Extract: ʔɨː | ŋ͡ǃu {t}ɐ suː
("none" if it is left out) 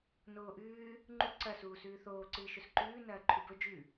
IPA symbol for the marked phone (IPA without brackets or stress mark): ǀ